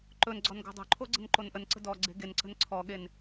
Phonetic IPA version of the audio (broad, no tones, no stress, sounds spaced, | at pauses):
ǃ ɵ n ɡ͡ǀ ɔ n ɡ o̤ dˤ o̤ ǃʰ o ɡ͡ǀ ə̤ n ǃ o n ʔ ə n ǀ ə̤ d ɔ ɡ͡ǀ e̤ ɡ e n ǀ ə̤ n ǀʰ ɔ ɠ e n